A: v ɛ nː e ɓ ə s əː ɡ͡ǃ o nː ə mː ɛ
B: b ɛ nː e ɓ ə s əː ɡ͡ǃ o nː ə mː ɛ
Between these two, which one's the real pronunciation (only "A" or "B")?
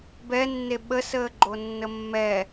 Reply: B